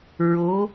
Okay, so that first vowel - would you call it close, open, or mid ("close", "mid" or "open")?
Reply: mid